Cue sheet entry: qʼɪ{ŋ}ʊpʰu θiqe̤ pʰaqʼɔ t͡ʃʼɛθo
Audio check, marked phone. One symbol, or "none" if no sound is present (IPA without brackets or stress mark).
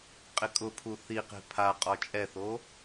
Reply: kʼ